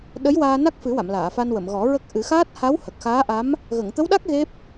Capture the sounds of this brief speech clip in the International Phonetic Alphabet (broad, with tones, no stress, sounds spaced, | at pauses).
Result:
ɗ ə˧˥ j w aː˧ n a˦˥ k̚ f ɨ˨˩˦ w a˨˩˨ m l aː˨˩˨ f a˧ n w ə˨˩˨ m ɣ ɔ˨˩˦ ɹ ə˦˥ k̚ ʔ ɨ˨˩˦ x aː˦˥ t̚ h a˧˥ w h ə˨˩ k̚ x aː˧˥ ʔ a˧˥ m | ɣ ə˨˩˨ ŋ t̪ ə˧˥ w ɗ a˦˥ k̚ ɣ e˦˥ p̚